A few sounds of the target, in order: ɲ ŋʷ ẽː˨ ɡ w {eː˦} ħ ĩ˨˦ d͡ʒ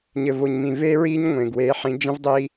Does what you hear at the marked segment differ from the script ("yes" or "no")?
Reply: yes